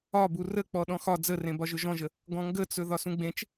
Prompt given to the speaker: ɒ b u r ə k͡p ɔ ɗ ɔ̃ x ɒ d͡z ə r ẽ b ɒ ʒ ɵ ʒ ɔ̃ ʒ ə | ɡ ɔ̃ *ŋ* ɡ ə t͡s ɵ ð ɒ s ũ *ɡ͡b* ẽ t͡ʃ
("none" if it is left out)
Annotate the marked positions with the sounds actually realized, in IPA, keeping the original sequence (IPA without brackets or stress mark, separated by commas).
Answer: ŋ, ɡ͡b